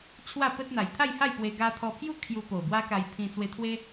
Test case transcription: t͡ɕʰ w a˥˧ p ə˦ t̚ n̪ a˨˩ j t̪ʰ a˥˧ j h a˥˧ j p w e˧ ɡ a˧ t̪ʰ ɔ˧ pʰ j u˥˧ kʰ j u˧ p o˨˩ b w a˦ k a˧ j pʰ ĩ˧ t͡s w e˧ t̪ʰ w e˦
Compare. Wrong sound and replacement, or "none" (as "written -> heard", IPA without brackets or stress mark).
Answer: none